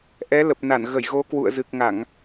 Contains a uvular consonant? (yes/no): no